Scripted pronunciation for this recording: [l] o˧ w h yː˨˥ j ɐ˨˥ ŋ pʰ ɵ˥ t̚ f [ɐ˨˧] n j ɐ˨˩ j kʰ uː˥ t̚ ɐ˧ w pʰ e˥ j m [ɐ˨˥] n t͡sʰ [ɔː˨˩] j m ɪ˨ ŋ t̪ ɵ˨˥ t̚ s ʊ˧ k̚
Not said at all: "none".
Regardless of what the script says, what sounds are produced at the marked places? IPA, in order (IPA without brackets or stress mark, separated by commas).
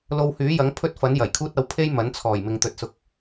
l, ɐ˨˥, ɐ˨˥, ɔː˨˩